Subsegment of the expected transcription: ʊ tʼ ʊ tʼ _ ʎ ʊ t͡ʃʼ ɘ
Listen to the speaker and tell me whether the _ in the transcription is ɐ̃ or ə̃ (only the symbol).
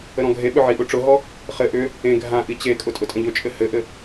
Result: ə̃